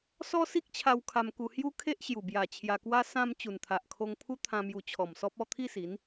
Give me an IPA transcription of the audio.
s ɔ˦ s i˦ k̚ t͡ɕʰ a˧ w kʰ a˧ m k u˧ h j u˦ kʰ e˦ ʔ ɕ j u˨˩ b j a˨˩ t͡ɕʰ j a˧ k w a˦ s ã˧ m t͡ɕ u˨˩ n t̪ʰ a˨ ʔ kʰ o˧ ŋ pʰ u˦ t̪ʰ ã˧ m j u˧ t͡ɕʰ ɔ˨˩ m s ɔ˦ p̚ ɔ˥˧ t̪ʰ i˥˧ s i˨˦ n

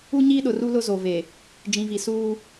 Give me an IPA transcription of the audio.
u˦ ɲ iː˦ ɗ ʊ˨ r u˦ l ʊ˦ z o˨ v e˨ | d͡ʒ ĩ˨ v i˨ s uː˦

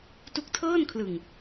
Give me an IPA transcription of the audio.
t u˦˥ k̚ tʰ ɤː˥˩ n kʰ l ɯ˨˩ ŋ

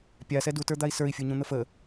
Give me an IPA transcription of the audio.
pʲ a s ɛ d u t ə˞ d̪ a i̯ s ə˞ i̯ fʲ u ɲ ũ n̪ ə f ə

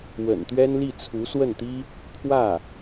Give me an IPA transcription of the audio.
w ə̰˨˩ n t̪ ɥ ɛ˥ n l i˥˩ t͡sʰ u˧˥ s w ə˥˩ n t̪ i˥ | pʰ w ä˥˩

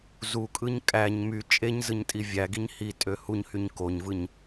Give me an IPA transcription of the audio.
z u kʼ ɯ ɲ kʼ æ ɲ m y t͡ʃʼ e ɲ z ɯ ɲ tʼ i vʲ æ ɡ i ɲ h i tʼ ø h u ɲ h y ɲ k o ɲ v ɯ ɲ

